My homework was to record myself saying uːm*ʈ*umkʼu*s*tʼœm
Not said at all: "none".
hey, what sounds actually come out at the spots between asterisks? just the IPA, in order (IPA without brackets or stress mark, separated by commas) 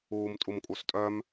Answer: tʼ, s